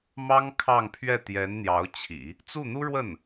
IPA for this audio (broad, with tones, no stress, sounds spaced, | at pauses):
m ɑ˥ ŋ kʰ ɑ˥˧ ŋ pʰ ɥ ɛ˥˩ t̪ j ɛ˧˥ n n̪ j ɑ˧˥ ʊ̯ t͡ɕʰ ḭ˨˩˦ | t͡s u˥˩ n̪ u˥ ɻ w ə˥˩ n